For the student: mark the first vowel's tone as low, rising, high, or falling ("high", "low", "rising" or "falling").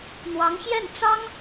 rising